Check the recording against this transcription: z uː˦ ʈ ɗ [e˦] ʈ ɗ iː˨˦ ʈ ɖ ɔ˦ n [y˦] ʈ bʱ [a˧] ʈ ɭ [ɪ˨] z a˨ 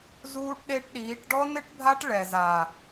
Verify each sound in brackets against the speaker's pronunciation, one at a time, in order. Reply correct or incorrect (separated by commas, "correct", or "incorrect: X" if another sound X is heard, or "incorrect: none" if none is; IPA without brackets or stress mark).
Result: correct, incorrect: ɪ˦, incorrect: a˦, incorrect: ɛ˨